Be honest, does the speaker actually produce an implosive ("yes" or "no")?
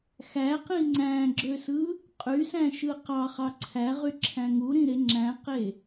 no